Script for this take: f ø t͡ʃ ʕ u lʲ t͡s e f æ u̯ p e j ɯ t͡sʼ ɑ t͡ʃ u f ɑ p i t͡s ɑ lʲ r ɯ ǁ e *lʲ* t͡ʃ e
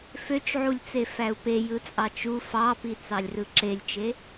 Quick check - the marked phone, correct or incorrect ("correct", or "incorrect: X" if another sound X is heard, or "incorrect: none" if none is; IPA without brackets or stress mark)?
correct